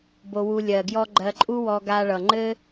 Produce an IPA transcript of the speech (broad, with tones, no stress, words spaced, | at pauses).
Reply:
bo˧wu˧ lʲɜ˨ɡjɔ˧ ɡ͡ǃɜ˧ǃʼu˦wɔ˧ɡa˧ ɭʌ˨ŋ͡ǃɘ˦